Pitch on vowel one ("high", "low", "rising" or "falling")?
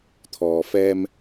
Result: low